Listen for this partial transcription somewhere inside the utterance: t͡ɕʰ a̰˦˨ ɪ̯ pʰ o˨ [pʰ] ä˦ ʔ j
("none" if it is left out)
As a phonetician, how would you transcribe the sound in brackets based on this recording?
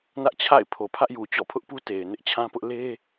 pʰ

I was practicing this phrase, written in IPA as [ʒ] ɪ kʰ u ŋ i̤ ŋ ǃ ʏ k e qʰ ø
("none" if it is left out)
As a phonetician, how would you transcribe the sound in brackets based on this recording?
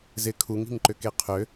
z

